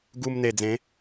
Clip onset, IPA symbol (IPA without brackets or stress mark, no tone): ɡ